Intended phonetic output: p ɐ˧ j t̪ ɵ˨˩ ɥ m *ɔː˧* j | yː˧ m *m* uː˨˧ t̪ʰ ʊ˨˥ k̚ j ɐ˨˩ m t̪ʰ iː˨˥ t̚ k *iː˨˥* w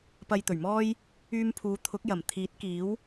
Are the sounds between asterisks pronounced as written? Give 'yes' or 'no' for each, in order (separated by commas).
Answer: no, no, yes